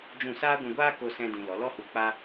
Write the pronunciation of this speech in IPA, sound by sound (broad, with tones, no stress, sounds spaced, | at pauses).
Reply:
d͡ʒ ũ˦˨ s aː˦ ɡʷ ũ˧ ɡʷ aː˦ k o˧ s ɛ̃˧ d ĩ˨ l ɔ˨˦ l ɔ˦ h u˧ k͡p a˦